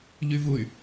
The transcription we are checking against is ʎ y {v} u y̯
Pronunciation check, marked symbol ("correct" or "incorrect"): correct